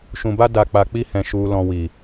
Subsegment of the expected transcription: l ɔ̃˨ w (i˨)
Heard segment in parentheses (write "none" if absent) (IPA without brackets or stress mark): i˨